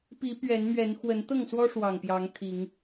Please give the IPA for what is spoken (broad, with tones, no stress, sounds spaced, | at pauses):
p i˨˦ p ɥ ɛ˨˦ n m ɥ ɛ˨˦ n x w ə˨˦ n t̪ ɤ˥˨ ŋ s w ɔ˦ ʂ w ɑ˨˩ ŋ p j ɑ˨˦ ŋ t̪ʰ i˨˦ ŋ